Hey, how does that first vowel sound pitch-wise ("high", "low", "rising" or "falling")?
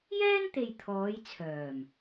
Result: high